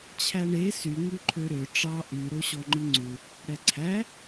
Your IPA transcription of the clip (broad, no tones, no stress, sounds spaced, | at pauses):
t͡ɕʰ æ ɳ e s y ŋ ʉ ǃʰ ø ɾ ø ʈ͡ʂ ɑ ʔ y ɾ o ɕ ɔ ŋ͡ǃ i ŋ͡ǀ u | ɽ ɛ ǀʰ æ